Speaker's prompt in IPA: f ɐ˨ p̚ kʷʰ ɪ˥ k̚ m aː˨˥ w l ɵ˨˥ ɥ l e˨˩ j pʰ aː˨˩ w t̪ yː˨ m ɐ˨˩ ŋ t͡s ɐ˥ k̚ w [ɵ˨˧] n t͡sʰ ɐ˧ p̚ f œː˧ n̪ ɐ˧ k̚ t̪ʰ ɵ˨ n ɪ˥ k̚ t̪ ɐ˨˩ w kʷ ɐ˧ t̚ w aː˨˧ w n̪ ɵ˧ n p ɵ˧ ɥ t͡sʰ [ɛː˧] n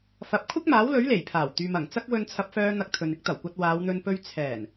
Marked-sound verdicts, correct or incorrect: incorrect: ɵ˧, incorrect: ɛː˨˩

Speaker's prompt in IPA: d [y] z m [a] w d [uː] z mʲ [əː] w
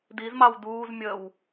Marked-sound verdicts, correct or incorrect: incorrect: i, incorrect: ɑ, correct, correct

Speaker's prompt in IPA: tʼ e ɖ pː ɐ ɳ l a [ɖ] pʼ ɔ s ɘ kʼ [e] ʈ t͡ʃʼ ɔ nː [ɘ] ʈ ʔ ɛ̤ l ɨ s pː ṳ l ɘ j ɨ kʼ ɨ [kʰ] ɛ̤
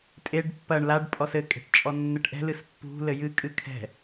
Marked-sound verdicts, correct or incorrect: correct, incorrect: e̤, correct, correct

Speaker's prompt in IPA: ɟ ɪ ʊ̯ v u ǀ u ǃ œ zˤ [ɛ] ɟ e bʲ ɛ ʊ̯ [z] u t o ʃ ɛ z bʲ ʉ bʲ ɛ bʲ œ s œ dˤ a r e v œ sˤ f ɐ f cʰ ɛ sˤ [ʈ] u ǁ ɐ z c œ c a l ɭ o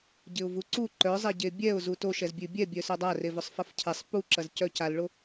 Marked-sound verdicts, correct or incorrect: correct, correct, incorrect: p

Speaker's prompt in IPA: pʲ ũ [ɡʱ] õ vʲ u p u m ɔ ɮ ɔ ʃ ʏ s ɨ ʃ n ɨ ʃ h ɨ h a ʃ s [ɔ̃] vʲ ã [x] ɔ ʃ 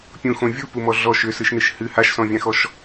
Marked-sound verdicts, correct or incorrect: incorrect: x, correct, correct

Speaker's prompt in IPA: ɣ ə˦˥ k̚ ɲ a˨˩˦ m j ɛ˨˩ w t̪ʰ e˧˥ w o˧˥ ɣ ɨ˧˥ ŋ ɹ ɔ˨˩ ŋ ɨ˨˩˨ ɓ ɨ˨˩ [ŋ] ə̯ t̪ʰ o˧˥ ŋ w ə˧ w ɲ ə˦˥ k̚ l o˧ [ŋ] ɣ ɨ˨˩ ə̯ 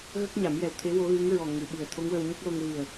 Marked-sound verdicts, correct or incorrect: incorrect: none, correct

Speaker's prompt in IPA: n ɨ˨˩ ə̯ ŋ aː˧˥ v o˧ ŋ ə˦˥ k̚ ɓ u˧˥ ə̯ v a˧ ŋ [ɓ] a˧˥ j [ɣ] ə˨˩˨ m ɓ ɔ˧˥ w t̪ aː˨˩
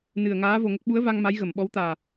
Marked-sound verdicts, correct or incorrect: incorrect: m, correct

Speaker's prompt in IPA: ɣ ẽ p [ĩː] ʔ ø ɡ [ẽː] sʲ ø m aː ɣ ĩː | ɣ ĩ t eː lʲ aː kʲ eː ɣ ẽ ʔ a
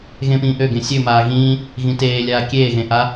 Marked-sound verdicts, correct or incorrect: correct, incorrect: ẽ

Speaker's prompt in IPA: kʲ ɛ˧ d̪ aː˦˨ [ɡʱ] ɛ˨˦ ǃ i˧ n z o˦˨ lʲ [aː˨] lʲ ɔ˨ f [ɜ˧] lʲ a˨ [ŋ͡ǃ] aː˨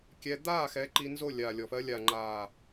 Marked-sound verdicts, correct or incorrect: incorrect: x, correct, correct, correct

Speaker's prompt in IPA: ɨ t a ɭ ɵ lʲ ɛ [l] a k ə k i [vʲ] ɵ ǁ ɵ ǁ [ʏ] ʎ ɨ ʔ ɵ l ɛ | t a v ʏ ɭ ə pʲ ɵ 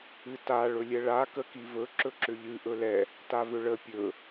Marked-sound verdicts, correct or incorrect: incorrect: ɭ, incorrect: v, correct

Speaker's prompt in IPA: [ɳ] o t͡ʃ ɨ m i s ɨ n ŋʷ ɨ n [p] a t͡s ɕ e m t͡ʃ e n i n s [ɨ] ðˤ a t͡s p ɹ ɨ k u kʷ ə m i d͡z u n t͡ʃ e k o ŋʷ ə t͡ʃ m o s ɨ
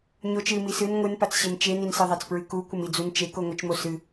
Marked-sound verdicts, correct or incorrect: incorrect: ɲ, correct, incorrect: e

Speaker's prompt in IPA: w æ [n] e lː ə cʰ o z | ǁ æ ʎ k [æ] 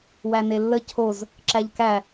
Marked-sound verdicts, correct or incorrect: correct, correct

